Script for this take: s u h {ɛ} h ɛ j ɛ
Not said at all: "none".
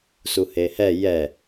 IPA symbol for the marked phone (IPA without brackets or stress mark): e